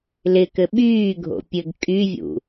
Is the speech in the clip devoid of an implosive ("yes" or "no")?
no